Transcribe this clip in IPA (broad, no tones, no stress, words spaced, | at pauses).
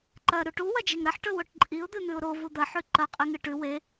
ǃɐ ɾuʈu wɐd͡ʒeŋɾɐħ ʈɵwoʈǃʼiʊ̯ d̪ɨn̪ʉʊ̯ɾo vud̪ɐ ħʉǃɐ qʼiŋɨʈʉ we